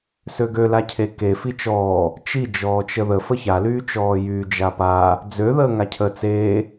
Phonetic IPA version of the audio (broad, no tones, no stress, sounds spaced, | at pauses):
s ø ɡ ø l a cʰ e k e f i t͡ʃ ɔː | t͡ʃ i d͡ʒ ɔː t͡ʃ ə ð ə f ə ç a l yː t͡ʃ ɔː j yː d͡ʒ a p a | d͡z ø ð əː ŋ a cʰ ə t͡s eː